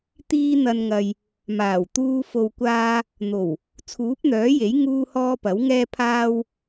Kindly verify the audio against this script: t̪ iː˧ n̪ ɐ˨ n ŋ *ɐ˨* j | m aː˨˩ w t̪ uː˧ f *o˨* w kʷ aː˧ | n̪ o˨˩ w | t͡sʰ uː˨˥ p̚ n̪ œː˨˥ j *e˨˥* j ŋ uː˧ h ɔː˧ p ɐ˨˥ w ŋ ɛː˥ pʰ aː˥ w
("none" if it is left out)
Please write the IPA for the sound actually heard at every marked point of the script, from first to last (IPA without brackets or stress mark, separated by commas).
ɐ˨, o˨, e˨˥